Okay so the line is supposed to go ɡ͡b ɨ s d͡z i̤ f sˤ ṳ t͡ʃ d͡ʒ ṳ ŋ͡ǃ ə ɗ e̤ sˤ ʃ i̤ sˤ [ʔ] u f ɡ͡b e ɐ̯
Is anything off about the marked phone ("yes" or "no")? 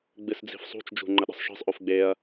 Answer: no